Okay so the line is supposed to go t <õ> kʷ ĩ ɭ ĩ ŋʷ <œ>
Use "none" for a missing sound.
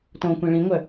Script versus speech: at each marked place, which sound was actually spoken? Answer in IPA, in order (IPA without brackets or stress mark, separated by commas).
õ, œ